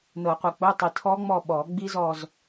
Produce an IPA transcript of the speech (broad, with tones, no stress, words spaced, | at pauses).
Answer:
nɤ˨˩˦qʷɘ˨k͡po˧˥˧tˤi˨ tʰɔ˦˥ŋ͡mɔ˦˨ ɓɔ˨˩˦ ɡ͡bi˦˥zɔ˦˨z